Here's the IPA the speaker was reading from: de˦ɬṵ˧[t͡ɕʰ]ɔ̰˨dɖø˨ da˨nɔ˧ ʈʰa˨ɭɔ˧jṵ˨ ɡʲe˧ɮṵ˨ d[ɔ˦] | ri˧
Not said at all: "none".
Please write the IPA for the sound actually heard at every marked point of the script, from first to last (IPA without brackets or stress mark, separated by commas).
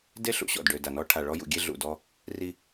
ɕ, ɔ˧